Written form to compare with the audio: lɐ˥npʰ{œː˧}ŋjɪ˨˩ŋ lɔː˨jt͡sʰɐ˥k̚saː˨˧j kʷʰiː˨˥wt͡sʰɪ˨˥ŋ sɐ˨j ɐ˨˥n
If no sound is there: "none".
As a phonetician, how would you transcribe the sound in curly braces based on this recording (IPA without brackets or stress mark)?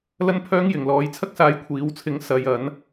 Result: œː˥